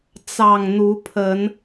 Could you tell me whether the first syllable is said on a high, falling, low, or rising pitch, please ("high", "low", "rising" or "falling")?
low